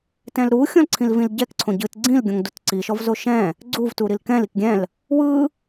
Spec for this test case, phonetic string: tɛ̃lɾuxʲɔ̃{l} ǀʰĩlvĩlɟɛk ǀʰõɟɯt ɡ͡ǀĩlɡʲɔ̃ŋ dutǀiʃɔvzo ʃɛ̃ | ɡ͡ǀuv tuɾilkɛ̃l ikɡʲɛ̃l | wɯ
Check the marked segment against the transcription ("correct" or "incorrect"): correct